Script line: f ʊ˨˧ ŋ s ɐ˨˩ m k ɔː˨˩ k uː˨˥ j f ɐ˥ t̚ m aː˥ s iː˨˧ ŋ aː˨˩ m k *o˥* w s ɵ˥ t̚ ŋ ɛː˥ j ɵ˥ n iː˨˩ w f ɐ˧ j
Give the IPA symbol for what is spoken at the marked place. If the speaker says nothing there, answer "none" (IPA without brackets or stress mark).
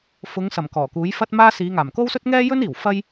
o˥